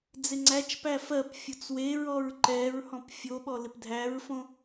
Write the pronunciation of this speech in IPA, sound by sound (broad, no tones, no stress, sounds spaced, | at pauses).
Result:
d͡z ɪ ŋ͡ǀ æ t͡ʃ p æ f ɜ p fʲ o t͡s w e ɹ ɔ ɹ ǃ ɛ ɹ h ɔ̃ p fʲ o ɓ ɔ l ɪ p dʱ æ ɹ f õ